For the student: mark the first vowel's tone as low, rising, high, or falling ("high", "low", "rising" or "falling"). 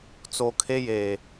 low